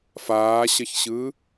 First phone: f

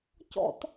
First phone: c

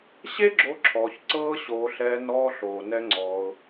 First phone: ɕ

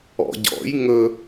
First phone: ɔ̰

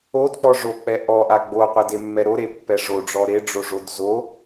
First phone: o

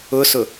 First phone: ʊ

